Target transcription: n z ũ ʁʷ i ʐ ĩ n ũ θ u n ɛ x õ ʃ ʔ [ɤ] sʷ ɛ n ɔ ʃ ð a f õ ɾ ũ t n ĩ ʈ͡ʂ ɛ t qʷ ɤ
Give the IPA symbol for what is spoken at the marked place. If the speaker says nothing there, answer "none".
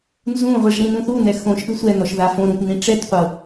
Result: ɯ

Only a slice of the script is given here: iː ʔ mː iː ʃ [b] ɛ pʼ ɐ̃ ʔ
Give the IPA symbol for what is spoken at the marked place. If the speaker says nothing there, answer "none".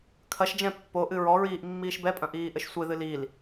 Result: b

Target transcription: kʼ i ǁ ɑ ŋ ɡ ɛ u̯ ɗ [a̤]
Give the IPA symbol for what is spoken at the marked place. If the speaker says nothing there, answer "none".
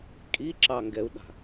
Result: a̤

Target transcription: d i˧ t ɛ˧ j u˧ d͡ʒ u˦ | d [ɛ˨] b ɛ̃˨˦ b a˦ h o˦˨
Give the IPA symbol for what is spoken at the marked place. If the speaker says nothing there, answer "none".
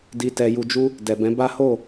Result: ɛ˨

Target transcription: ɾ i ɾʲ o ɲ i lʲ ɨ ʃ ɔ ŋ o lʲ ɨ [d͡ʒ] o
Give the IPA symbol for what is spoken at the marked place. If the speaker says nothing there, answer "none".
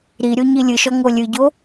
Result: ɟ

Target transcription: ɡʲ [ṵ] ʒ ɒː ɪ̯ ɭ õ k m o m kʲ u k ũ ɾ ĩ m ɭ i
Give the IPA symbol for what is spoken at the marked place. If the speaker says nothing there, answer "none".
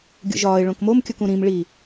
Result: ṵ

